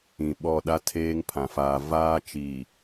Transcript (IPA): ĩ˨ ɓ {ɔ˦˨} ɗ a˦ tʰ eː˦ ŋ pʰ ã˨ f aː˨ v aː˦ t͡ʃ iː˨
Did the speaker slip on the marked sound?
no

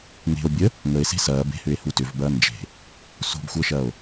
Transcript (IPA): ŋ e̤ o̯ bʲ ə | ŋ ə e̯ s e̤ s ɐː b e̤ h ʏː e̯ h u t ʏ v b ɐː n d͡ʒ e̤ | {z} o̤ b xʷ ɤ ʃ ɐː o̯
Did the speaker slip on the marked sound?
yes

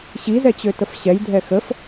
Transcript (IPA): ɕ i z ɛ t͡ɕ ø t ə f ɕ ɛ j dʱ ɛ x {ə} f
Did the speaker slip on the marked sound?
no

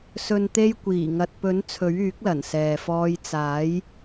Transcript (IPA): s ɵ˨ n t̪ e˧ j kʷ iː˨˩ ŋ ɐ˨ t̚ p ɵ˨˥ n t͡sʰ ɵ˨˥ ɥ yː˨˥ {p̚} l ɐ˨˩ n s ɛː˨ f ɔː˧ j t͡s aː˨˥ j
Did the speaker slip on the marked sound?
yes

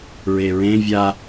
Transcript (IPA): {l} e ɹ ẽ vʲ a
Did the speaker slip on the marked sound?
yes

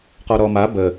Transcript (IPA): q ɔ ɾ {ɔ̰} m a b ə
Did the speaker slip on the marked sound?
yes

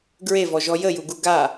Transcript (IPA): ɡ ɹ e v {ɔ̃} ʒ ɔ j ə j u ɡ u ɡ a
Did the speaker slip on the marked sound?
yes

